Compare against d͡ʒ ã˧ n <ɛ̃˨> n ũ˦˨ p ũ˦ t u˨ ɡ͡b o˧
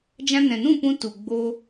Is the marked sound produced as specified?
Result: yes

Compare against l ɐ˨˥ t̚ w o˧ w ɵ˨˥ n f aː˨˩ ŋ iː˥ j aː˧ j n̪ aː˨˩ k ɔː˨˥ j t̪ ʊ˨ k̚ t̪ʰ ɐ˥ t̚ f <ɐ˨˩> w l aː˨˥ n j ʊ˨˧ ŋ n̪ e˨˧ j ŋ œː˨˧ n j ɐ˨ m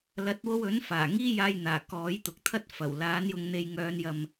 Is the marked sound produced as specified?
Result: yes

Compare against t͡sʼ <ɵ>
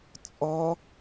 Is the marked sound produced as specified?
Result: no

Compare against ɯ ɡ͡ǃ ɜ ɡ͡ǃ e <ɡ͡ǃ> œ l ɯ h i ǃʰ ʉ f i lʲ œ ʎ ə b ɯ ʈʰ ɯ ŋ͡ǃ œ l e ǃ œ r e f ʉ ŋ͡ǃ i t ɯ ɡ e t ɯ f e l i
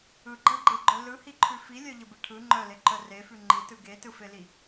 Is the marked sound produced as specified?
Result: yes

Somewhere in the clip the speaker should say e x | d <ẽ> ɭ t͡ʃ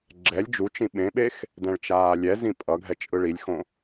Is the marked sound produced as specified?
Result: no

